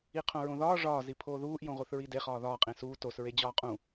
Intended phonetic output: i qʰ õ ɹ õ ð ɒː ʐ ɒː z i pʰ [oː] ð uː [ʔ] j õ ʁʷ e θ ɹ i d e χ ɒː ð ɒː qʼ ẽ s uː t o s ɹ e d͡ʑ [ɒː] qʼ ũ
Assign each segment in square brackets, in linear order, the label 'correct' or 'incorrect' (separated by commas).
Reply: correct, correct, correct